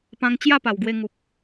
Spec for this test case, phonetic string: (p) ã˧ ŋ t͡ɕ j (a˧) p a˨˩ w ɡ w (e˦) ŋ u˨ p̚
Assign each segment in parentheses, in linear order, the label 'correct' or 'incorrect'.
correct, incorrect, incorrect

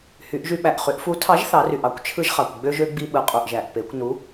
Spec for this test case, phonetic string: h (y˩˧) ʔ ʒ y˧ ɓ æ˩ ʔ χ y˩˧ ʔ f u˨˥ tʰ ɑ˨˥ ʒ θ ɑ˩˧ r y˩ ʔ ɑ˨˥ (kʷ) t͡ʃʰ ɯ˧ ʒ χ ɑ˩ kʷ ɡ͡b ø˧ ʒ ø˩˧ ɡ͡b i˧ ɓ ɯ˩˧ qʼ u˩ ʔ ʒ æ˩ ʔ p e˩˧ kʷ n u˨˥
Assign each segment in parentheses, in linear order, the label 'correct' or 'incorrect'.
correct, correct

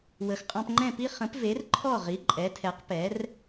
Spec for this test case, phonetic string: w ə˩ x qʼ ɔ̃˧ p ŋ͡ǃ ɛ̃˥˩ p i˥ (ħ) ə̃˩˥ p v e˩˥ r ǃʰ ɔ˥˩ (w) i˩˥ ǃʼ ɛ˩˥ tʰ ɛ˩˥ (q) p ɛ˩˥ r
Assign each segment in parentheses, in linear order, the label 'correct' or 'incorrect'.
incorrect, incorrect, correct

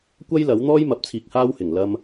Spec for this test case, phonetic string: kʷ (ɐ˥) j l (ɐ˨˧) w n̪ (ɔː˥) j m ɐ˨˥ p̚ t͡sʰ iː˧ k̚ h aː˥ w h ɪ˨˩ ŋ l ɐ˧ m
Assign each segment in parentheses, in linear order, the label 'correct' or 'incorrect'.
correct, incorrect, correct

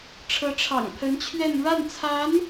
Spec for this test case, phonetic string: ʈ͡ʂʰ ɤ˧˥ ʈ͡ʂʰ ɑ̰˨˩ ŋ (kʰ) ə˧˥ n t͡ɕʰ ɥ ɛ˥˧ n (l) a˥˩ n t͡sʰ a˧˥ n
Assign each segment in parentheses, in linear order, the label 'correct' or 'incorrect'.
incorrect, incorrect

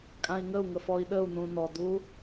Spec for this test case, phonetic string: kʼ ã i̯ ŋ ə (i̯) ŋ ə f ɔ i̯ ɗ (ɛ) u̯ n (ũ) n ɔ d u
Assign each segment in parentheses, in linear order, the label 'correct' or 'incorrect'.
incorrect, incorrect, correct

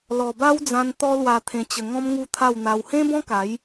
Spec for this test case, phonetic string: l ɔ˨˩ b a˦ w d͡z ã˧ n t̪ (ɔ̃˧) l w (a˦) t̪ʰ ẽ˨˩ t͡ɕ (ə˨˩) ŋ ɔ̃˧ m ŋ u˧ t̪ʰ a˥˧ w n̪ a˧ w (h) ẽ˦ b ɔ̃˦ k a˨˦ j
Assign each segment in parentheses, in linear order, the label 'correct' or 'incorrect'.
incorrect, incorrect, correct, correct

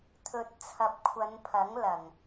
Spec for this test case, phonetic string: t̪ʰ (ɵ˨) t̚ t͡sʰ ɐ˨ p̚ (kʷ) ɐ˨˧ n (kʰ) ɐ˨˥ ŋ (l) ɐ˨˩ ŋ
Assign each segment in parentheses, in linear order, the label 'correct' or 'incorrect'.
correct, incorrect, incorrect, correct

